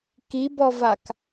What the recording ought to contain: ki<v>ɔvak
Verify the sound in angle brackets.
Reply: incorrect: b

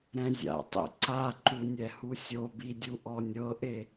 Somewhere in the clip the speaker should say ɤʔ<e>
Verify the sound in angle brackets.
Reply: correct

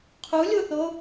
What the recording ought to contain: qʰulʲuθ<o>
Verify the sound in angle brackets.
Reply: correct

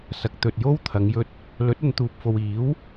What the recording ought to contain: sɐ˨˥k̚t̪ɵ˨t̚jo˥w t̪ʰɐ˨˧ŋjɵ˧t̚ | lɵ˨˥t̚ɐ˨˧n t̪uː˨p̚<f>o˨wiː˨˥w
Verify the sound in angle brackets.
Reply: correct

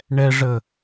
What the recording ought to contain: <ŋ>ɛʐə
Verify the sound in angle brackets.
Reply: incorrect: ɳ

